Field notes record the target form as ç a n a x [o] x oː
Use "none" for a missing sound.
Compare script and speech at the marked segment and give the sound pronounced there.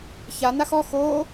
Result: ɔ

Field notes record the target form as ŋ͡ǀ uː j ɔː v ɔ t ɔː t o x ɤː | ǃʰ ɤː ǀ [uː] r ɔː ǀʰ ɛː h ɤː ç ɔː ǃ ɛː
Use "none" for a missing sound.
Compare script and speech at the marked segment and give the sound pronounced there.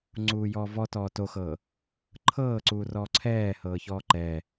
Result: uː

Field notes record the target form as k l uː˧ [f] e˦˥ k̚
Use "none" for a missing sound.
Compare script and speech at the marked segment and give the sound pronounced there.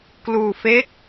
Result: f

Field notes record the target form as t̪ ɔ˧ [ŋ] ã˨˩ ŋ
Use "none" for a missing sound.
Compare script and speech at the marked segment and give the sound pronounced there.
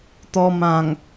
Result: m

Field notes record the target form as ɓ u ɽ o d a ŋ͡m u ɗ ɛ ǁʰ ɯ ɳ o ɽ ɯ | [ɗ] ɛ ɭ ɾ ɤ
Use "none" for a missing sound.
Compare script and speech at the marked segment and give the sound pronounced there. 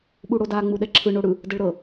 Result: d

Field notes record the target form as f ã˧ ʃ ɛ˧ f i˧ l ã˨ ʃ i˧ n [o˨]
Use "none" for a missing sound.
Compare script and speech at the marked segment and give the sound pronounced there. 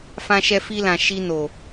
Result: o˨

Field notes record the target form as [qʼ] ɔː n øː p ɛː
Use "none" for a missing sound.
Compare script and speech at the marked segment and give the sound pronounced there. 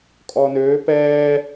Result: kʼ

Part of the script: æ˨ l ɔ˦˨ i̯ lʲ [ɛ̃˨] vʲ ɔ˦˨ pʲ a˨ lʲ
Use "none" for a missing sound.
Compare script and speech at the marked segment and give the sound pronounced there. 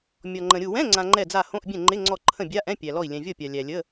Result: ɛ̃˨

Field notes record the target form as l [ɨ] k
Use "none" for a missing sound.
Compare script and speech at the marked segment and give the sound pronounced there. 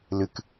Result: ɨ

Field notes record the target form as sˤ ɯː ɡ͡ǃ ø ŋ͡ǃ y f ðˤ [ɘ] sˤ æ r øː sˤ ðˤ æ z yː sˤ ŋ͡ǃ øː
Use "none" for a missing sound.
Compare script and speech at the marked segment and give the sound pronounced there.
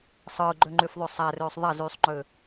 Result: ø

